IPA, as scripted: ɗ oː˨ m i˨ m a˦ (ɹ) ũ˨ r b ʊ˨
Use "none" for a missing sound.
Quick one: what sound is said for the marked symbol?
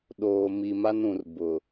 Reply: n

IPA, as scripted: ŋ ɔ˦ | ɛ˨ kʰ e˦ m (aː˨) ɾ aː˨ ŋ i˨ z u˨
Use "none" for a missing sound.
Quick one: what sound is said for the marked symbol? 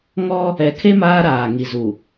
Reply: aː˦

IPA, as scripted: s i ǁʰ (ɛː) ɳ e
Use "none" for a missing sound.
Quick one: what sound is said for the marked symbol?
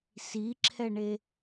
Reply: ɛ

